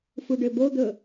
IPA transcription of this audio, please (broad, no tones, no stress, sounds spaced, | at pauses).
f u ɖ ø b o d̪ ɵ